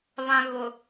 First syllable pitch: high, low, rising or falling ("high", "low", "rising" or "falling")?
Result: low